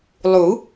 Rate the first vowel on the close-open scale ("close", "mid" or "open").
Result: close